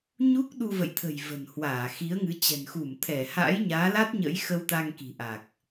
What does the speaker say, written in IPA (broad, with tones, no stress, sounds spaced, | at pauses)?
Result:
ɲ u˦˥ k̚ ɗ u˧ v ə̰˧˨ j t̪ʰ ə̤˨˩ j v ə̤˨˩ n h w aː˧˩ x i˨˦ ə̯ ŋ ɨ˨˦ t͡ɕ ɛ̤˨˩ n x u˧˩ m t̪ʰ ɛ˧˩ h a̰˧˥ j ɲ aː˨˦ l a˦˥ t̚ ɲ ə̰˧˥ j x ə˧ w t̪ a˧ ŋ k i̤˨˩ ʔ a˨˩ k̚